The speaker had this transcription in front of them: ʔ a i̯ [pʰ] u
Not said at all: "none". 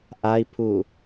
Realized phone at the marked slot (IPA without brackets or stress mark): pʰ